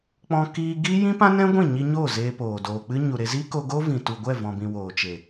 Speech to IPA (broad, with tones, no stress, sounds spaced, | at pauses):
k͡p ɔ̃˧ k iː˧ ɡ i˦ j ĩ˦ p ã˦ n ɛ̃˦ ɡʷ ĩ˦˨ ɲ i˧ ɲ oː˦˨ z eː˧ p oː˨ d oː˨ k͡p ɨ˦ ɲ u˨ ɾ e˧ z iː˦ k o˧ ɡ oː˦ v ĩ˨ t u˨ ɡʷ ɛ˦˨ v ɔ̃˨ b ĩ˨ w oː˨ t͡ʃ e˨